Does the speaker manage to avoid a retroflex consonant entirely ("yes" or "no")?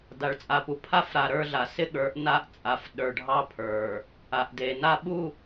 no